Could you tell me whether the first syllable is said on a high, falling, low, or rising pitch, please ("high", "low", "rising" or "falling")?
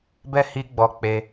high